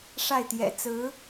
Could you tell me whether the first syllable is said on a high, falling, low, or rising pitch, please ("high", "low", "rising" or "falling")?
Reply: falling